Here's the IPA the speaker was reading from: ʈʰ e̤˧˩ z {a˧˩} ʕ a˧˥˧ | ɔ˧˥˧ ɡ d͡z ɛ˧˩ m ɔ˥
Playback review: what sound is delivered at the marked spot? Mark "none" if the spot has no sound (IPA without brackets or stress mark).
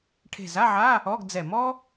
a˧˥˧